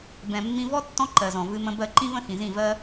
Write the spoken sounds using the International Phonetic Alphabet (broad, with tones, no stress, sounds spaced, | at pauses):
b ɛ̃˨ mː ĩ˧ v ɔ˦ tː ɔ̃˦ ǃ ɜ˨ z ɔ̃˨ v ɨ˧ m ə̃˧ b ɜ˧ ǃ ĩ˦ v ə̃˦ x ĩ˨ z ĩ˦˨ v ɜ˦